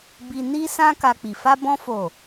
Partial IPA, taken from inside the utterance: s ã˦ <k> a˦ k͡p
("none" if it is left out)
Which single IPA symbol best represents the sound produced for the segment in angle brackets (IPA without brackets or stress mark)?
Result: k